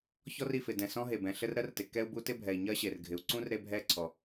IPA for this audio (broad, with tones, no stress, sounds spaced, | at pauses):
ç ɔ˥ r i˩ f ɪ˩ d ɛ̃˩ s ɔ̃˥ ɦ e˩ b ɛ̃˩ ɬ ɘ˥ r ɾ ɜ˥ r t ɪ˩ k ɛ˥ u̯ b u˥ t ɪ˥ bʱ ɛ˩ i̯ ɲ ɜ˥ ɕ e˩ r ɡʱ ɪ˩ u̯ ǀ ũ˥ r ɾ e˥ bʱ ɛ˥ ǀʰ ɔ˩